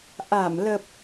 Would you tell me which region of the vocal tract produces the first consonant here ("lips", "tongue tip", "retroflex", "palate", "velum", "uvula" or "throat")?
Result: throat